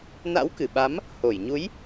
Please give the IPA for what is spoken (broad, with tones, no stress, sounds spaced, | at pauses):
n a̰˧˥ w k ɨ˧˩ ɓ a˨˦ m | h o˧˩ j ɲ u˨˦ j